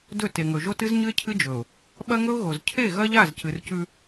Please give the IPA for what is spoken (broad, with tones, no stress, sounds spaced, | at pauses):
d ɵ˦˨ t e˨ ŋ ɵ˨ ʒ o˦ t ɨ˦ z ɲ ɨ˦ ɪ̯ cʰ ɨ˦ d͡ʒ ɵ˨ ʊ̯ | ɓ ɐ˦ ŋ ɵ˦ ʊ̯ ɣ o˨ z cʰ e˦˨ ɣ ɐ˦ ʎ a˦˨ z c ɨ˨ r c ʉ˦